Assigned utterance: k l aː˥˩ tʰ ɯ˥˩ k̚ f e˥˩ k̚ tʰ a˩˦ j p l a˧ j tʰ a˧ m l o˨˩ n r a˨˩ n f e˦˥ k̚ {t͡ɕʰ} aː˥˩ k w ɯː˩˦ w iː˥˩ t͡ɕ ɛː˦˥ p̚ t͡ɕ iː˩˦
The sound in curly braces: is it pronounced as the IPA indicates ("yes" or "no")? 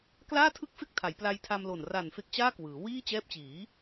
no